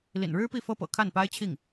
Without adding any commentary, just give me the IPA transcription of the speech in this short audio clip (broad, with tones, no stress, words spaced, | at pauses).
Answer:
lḭ˨˩nɻɻ̩˥pi˥˩ fɤ˥pɤ̰˨˩ kʰa˥˩npa˥ɪ̯ t͡ɕʰi˥˩ŋ